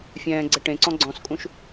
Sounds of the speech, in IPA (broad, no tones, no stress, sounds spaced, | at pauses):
fʲ ɛ̃ː ɡ͡ǀ ɘ ʈ ẽ ǀ ɔ̃ ɡ͡ǀ ɔ̃ s kʼ ũ ʃ